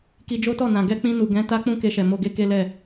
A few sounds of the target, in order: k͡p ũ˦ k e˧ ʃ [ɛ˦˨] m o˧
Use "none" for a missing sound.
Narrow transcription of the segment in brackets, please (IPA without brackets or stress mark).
ɛ˨